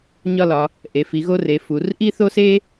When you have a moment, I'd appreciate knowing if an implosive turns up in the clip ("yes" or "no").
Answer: no